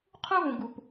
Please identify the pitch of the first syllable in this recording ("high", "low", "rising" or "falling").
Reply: high